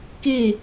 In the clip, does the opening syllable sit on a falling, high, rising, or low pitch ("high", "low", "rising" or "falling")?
falling